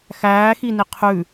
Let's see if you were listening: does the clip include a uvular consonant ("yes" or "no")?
yes